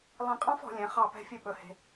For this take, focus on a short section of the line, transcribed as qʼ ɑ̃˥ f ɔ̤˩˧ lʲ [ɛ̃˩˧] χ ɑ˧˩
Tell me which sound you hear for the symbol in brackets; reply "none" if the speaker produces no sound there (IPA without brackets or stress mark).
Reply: ɛ̃˩˧